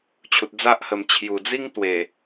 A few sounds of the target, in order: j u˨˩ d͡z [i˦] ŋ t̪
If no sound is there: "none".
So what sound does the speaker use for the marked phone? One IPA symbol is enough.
i˦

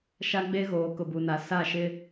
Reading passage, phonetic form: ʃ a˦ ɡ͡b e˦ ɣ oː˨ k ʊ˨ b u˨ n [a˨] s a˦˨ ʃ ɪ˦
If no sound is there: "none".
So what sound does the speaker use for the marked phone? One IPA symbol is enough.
a˨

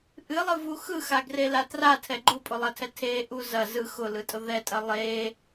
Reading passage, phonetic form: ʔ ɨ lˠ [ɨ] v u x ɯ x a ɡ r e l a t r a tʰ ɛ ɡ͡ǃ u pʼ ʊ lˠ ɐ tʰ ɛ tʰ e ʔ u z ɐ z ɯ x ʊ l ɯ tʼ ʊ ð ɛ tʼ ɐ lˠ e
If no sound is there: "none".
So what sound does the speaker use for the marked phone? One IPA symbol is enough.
ɨ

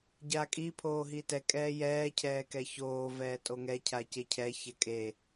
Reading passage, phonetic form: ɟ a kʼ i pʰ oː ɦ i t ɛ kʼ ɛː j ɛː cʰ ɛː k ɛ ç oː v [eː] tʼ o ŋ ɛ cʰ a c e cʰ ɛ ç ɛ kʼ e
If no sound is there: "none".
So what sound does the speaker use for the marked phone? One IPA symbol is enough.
ɛː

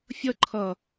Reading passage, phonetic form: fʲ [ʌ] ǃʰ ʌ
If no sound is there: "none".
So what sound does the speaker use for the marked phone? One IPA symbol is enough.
ʌ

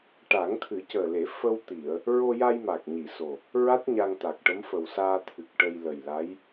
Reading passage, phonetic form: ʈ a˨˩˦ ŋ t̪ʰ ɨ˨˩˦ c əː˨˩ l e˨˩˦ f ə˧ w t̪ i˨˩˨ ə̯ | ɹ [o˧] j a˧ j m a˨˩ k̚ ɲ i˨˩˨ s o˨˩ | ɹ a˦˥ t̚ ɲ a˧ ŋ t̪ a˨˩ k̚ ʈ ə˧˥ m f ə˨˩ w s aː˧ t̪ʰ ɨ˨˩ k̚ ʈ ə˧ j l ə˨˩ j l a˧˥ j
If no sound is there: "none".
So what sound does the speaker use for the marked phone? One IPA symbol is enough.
o˧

